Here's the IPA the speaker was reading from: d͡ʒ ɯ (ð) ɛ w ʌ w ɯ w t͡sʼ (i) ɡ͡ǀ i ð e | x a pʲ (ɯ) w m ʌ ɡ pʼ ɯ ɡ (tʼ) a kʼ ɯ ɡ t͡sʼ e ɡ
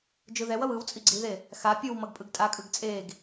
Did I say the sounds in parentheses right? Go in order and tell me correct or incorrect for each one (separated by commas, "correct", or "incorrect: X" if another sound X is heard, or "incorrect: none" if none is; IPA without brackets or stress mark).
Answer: correct, correct, correct, correct